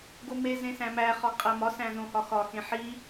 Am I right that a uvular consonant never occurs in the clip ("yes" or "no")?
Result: no